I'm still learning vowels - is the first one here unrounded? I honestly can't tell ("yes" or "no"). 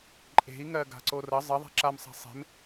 yes